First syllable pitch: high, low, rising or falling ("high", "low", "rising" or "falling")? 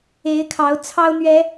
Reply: rising